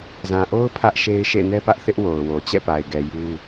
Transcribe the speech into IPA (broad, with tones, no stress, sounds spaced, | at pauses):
z ã˨ ʔ o˦ ʊ̯ pʰ ä˦ ʔ ʃ e˦ ɪ̯ ʃ ḛ˦˨ n ɛ˦ p ä˦ ʔ θ ɪ˦ ʔ w o˨ ʊ̯ w o˨ t͡ɕ ɛ̰˦˨ p a˨ ɪ̯ ɡ ɛ˨ j u˦